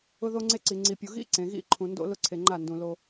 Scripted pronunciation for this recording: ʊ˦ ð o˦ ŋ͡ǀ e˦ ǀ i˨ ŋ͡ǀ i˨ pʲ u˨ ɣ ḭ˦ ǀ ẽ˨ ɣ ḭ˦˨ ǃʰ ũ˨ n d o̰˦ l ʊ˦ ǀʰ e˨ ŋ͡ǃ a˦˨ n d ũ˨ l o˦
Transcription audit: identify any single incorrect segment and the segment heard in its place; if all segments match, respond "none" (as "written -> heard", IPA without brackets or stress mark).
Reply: none